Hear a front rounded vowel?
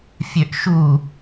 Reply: yes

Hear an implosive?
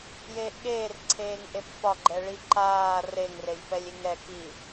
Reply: yes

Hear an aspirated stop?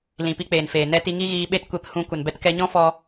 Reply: no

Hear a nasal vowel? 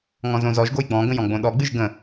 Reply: yes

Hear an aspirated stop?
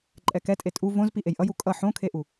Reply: yes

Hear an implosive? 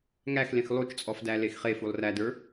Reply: no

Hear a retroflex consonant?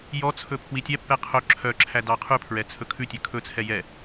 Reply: no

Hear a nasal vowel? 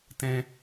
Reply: yes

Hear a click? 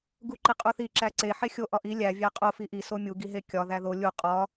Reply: yes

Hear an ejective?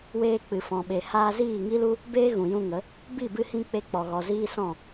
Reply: no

